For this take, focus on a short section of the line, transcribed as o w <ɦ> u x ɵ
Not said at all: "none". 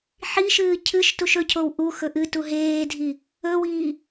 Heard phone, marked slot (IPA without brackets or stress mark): ʔ